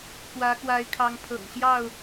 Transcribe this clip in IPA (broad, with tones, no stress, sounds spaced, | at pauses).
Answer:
k w ä˨˦ k w a˨˦ ɪ̯ kʰ ɑ˨˦ ŋ pʰ ɤ̰˨˩ ŋ ɕ j ɑ˥˨ ʊ̯